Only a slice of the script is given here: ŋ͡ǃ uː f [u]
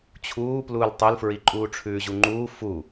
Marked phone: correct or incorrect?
correct